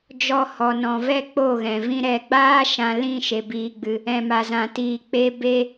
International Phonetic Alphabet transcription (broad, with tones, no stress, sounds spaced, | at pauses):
d͡ʒ ɔ˧ h ɔ˨ n ɔ̃˨ v ɛ˦ k͡p o˦˨ ɣ ɛ̃˨ v ĩ˦ ɾ ɛ˨ ɡ͡b aː˦ ʃ ã˧ l ĩ˦˨ ʃ e˨ b iː˨ ɡ͡b ɨ˨ | ɛ̃˨ m a˨ z ã˨ t iː˨ k͡p e˧ b e˦